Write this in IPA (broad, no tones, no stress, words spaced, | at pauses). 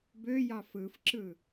bøjɑ fɯfǁɯ